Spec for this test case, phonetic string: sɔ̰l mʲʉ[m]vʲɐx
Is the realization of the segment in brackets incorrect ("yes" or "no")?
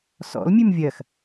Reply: no